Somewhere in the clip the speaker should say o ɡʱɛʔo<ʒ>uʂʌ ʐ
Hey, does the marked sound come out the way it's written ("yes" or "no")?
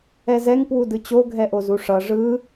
no